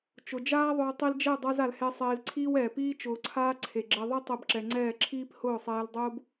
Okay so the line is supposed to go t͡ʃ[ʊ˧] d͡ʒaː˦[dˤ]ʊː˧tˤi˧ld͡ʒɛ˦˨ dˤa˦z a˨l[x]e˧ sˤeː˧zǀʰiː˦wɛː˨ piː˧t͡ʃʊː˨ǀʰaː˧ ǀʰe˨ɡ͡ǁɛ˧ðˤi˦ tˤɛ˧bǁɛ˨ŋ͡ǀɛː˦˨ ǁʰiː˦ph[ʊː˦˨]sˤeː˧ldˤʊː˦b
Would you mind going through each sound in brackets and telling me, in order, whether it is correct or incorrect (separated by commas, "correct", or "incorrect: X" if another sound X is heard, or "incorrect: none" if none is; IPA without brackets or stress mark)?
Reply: correct, incorrect: ðˤ, incorrect: h, correct